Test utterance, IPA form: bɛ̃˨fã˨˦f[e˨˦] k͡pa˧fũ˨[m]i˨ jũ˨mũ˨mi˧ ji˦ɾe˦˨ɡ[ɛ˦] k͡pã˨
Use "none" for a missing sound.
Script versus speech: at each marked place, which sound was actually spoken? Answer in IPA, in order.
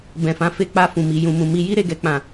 e˧, m, ɛ˨

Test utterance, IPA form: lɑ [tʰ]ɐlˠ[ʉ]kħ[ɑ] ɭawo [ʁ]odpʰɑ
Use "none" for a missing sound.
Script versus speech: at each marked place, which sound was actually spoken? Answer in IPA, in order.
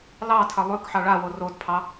tʰ, ʉ, ɑ, r

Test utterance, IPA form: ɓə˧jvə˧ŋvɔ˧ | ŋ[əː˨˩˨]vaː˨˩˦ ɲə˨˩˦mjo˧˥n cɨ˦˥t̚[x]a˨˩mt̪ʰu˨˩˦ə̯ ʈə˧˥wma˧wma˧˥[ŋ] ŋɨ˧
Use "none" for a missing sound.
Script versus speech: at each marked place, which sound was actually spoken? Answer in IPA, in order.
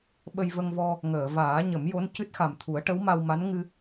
əː˨˩˨, x, n

